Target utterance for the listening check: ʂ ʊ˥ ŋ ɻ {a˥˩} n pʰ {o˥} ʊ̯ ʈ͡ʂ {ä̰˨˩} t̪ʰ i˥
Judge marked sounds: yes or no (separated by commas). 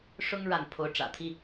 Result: yes, no, yes